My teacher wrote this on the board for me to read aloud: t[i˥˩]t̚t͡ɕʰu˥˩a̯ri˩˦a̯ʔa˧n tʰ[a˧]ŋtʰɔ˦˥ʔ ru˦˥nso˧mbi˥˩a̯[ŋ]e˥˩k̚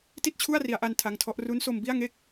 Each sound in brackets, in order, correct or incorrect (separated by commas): correct, correct, correct